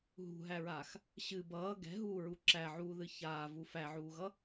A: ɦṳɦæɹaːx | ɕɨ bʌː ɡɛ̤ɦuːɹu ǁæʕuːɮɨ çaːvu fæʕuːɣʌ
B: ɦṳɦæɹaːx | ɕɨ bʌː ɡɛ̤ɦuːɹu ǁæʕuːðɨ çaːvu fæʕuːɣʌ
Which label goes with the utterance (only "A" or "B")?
B